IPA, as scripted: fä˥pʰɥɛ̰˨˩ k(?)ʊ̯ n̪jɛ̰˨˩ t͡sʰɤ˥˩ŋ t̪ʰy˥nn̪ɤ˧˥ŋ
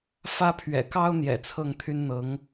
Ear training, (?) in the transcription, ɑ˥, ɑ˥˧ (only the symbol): ɑ˥